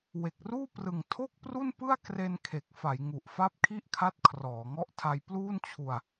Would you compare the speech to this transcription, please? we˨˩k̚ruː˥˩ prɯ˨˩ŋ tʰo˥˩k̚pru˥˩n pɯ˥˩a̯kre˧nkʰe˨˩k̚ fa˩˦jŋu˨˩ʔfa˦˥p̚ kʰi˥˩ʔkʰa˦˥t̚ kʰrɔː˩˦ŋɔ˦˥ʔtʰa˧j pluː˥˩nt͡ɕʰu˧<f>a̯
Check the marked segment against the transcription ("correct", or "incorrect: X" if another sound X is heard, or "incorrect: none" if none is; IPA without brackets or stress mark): incorrect: none